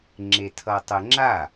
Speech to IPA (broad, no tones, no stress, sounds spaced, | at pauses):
ŋ͡ǁ e tʰ ʌ tˤ ə ŋ͡ǁ a